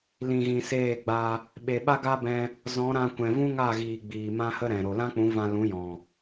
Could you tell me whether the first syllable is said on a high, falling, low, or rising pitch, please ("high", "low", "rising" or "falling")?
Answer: low